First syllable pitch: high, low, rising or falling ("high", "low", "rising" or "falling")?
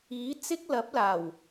rising